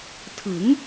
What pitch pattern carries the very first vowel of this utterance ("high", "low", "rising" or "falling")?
rising